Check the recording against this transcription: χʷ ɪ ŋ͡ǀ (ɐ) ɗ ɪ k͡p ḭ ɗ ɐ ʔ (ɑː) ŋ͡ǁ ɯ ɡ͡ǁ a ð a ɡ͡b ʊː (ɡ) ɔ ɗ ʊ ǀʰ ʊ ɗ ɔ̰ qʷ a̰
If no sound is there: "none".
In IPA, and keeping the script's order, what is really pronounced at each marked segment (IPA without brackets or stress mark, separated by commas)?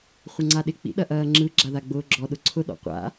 a, ɐː, ɡ͡ǁ